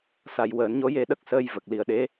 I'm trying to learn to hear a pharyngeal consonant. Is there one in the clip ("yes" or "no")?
no